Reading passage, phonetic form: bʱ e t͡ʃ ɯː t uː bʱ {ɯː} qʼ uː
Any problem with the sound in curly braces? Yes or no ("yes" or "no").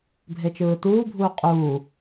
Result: yes